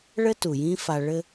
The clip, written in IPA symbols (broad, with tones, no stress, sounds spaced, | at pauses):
ɭ ɘ˦ t u˨ j ĩ˦ f a˨ ɭ ɘ˦